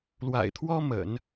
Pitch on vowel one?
low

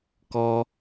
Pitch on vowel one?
high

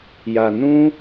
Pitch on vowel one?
low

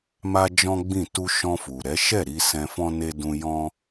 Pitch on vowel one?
high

